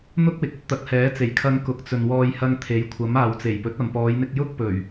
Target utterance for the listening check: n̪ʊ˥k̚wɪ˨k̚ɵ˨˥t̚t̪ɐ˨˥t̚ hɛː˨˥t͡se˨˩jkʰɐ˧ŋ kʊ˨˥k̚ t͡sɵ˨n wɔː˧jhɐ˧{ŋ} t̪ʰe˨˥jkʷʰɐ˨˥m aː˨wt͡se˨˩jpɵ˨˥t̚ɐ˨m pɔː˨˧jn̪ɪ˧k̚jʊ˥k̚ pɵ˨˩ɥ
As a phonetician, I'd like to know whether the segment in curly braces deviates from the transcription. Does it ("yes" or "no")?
no